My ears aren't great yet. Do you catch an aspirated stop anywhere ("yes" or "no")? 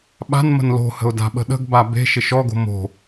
no